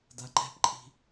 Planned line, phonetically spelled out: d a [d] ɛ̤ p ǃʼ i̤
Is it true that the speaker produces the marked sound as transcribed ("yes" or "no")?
no